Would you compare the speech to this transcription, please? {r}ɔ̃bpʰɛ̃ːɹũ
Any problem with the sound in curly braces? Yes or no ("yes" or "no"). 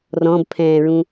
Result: no